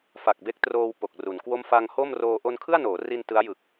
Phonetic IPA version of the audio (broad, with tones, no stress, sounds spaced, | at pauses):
f a˨˩ k̚ b e˦˥ k̚ t r oː˧ w p o˨˩ k̚ r u˩˦ n k w o˥˩ m f a˧ ŋ h o˥˩ m r oː˧ ʔ o˧ n kʰ ɯ˥˩ a̯ n oː˩˦ r i˧ n t ɯ˦˥ a̯ j ɯ˨˩ k̚